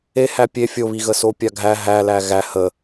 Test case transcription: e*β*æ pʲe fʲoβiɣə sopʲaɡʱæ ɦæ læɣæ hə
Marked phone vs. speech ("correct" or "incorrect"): incorrect